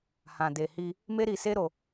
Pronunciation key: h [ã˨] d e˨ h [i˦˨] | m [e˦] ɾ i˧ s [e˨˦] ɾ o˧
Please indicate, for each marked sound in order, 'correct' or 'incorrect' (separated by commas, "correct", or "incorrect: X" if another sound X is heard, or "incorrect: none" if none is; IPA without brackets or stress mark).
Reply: correct, incorrect: i˧, correct, incorrect: e˦